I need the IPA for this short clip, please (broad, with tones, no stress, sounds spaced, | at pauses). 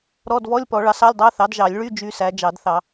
ɾ ɔ˧˥˧ d v ɔ˧˥˧ lʲ p ɔ˨˩˦ ɭ ɑ˩˥ s ɑ˧˥˧ lʲ dˤ ɑ˧˥˧ θ ɑ˩˥ d ʒ ɑ˨˩˦ lʲ ɭ y˧˥˧ d͡ʒ y˧˥˧ s æ˩˥ d͡ʒ ɑ˨˩˦ d θ ɑ˨˩˦